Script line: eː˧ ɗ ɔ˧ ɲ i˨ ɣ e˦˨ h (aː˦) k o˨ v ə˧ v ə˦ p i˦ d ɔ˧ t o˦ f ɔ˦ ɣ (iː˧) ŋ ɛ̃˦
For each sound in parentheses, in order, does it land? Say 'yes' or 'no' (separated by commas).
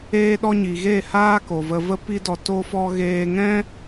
yes, no